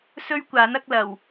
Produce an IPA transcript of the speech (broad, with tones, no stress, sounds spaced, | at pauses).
s ɵ˥ ɥ kʷ aː˨˥ n ɐ˨˥ k̚ l ɐ˨˩ w